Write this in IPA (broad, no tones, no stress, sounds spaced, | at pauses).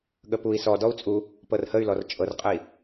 ɠ ə p u i̯ s ɔ d ɔ u̯ t͡sʼ u | p ɤ r h ə y̯ l ɔ r t͡ʃʼ ɤ r qʼ ə i̯